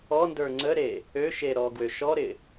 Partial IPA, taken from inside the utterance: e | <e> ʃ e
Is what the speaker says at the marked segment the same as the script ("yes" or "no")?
no